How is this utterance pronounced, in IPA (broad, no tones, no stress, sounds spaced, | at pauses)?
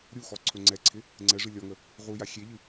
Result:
ɾʲ u x ɔ ǀʰ ɵ ŋ͡ǀ ɛ ǀʰ ɪ | ŋ͡ǀ ɛ ʐ ɨ lʲ ɔ ŋ ə | ʁ u j a xʲ e ʎ ɨ